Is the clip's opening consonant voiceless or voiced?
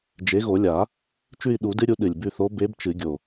voiced